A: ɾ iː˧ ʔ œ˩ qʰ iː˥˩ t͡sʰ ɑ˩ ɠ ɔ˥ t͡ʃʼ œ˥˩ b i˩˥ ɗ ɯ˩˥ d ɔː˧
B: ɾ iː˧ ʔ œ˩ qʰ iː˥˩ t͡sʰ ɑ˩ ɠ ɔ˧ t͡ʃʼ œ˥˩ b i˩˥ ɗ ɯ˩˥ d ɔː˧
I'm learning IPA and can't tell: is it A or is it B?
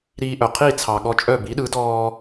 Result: B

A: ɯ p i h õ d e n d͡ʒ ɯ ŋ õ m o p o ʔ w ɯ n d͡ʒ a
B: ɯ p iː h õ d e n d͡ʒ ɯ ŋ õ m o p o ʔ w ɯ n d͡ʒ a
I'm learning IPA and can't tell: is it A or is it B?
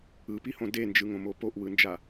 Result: A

